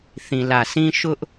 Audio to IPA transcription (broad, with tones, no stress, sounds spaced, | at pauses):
θ ĩ˨ l ä˨ sʰ ĩ˦ ʃ ʊ˦ ʔ